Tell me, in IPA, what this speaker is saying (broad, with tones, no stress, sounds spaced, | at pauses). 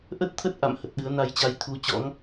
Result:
ʔ ə˦˥ t̚ t̪ʰ ə˦˥ t̚ ʔ a̰˧˨ m h ə˨˩ t̚ ɗ ɨ˨˦ ə̯ n a˧ j t͡ɕ a˧ j t̪ʰ u˨˦ t͡ɕ ɔ̰˧˥ ŋ